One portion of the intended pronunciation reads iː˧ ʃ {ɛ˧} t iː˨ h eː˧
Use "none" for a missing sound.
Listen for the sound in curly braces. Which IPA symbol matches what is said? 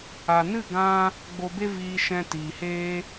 ɛ̃˧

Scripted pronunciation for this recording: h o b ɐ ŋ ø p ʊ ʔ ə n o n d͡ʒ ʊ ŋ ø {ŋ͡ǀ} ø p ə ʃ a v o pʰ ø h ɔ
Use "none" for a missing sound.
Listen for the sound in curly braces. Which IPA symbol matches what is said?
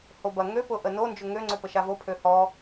ŋ͡ǀ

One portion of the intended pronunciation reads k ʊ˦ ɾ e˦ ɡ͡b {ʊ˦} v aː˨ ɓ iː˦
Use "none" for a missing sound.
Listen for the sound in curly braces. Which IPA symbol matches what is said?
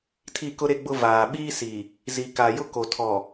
ʊ˦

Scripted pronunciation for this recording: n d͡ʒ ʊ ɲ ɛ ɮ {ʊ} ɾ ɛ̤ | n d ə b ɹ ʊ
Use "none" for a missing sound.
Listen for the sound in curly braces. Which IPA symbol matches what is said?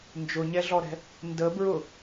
ɔ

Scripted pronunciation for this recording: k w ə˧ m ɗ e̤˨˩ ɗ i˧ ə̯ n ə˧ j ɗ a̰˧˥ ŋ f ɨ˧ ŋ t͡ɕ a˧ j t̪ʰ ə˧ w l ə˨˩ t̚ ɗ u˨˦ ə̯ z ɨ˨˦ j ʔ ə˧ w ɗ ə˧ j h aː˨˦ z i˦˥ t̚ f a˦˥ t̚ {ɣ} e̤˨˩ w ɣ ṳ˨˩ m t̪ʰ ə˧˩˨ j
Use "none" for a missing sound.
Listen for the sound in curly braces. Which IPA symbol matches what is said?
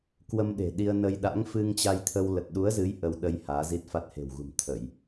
h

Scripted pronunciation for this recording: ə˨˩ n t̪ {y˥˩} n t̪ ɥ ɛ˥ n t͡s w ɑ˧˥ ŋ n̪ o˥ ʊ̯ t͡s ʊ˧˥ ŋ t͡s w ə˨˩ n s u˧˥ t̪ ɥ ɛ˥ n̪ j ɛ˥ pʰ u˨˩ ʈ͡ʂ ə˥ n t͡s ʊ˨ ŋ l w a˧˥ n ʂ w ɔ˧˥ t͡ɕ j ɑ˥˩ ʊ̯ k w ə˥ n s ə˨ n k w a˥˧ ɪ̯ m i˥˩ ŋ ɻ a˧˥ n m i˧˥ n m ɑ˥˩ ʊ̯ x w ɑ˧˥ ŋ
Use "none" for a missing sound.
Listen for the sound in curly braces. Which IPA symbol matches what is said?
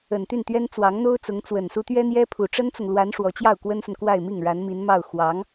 y˥˩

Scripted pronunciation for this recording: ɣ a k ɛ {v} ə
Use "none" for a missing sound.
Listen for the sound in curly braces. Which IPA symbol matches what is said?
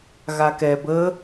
b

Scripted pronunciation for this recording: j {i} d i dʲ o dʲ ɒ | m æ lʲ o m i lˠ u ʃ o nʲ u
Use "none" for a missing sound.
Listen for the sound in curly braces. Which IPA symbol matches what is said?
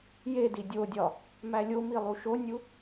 e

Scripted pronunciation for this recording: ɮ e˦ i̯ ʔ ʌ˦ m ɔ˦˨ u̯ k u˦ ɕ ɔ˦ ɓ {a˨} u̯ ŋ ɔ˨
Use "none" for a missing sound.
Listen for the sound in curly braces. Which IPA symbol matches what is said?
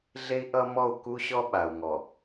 a˨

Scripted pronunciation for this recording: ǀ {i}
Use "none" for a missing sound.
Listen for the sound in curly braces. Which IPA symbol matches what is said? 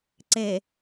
e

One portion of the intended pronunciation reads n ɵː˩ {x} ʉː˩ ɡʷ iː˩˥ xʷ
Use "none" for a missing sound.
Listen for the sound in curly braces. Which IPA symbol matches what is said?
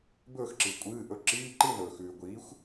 x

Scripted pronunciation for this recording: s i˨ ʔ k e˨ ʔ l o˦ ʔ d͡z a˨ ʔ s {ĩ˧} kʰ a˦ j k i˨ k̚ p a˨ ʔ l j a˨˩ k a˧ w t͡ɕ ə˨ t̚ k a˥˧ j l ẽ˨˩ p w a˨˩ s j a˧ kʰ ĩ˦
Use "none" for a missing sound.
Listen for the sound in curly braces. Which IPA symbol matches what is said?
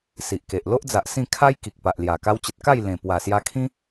ĩ˥˧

